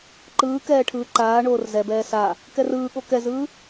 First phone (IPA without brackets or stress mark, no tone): ǃ